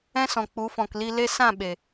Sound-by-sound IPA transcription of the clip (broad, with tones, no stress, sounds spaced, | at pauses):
ɛ̃˦ s ɔ̃˨ k͡p u˨˦ f ɔ̃˨ k l i˧ l e˧ s ã˦˨ ɓ e˨